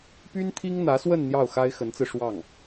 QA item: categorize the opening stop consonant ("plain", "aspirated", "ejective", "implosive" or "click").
plain